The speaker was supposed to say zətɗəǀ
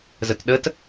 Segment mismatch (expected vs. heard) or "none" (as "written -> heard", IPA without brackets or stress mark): ǀ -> t